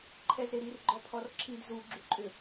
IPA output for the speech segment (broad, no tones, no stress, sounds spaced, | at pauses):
ǃʰ ɛ z ɾ e ɾ i r ɡ͡ǃ ɔ pʰ ɔ r ǁʰ i d z u ɡ͡ǁ u ǃʼ ʏ